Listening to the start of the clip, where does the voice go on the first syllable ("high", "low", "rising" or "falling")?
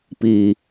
low